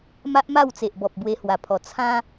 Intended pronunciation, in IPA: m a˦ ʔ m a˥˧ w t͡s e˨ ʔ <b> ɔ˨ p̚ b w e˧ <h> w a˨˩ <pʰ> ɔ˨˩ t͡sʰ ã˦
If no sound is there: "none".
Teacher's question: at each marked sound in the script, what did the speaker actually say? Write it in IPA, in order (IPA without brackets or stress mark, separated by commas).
b, h, pʰ